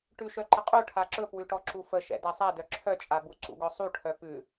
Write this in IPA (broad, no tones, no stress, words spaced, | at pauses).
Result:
ʈʉʃœǃəqʼu ʈʰaǁɵpwʉʈɔ ǁufəʃɛ̰ dasˤadœ ǁʰœt͡ʃʼabu ǀṵɡɔsˤuʈʰœ pʉ